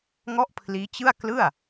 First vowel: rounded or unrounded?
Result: rounded